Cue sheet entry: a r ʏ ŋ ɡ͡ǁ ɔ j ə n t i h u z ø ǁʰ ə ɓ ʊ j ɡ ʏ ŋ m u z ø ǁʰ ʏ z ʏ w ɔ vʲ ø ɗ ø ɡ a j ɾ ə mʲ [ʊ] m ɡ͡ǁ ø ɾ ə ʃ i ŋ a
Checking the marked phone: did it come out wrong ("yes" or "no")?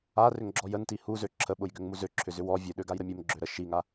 yes